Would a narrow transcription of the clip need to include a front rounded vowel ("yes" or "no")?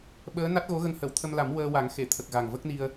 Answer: no